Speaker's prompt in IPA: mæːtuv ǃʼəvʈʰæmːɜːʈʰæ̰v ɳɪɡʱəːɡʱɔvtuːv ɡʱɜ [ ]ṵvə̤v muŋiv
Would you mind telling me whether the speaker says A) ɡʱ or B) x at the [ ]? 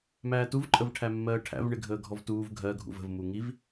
A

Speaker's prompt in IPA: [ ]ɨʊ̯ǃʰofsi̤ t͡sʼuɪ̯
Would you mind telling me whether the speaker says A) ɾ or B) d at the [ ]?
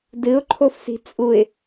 B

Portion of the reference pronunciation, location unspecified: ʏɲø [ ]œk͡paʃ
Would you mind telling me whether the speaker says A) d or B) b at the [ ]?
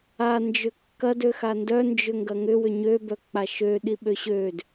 B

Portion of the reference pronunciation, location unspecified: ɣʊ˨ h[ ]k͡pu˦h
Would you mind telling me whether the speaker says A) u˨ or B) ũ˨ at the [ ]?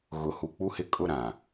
A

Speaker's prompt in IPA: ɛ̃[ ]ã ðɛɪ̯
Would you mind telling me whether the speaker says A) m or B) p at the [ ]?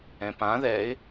B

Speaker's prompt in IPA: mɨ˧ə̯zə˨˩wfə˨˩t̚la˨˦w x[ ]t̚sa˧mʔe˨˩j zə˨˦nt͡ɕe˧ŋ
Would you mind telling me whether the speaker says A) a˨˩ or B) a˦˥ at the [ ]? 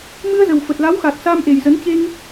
A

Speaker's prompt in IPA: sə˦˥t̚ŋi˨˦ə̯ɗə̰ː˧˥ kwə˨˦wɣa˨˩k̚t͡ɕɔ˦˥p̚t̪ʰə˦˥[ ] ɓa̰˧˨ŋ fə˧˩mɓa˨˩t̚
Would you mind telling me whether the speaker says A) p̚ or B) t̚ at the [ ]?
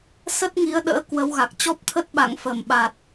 B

